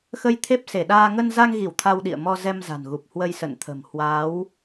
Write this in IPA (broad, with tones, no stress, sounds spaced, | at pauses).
x ə˧ j t̪ʰ e˦˥ p̚ s e˧˩ ɗ aː˧ ŋ ə˧ n z a˧ ŋ ɣ i˧˩ w t̪ʰ a˧ w ɗ ḭ˧˨ ə̯ m ɔ˧ z ɛ˧ m z a̤˨˩ n ɣ u˨˩ p̚ h w ə˧ j s ə̰˧˨ n t̪ʰ ə̤˨˩ m h w a˨˦ w